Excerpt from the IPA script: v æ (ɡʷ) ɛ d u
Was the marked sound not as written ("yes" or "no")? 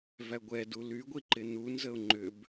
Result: no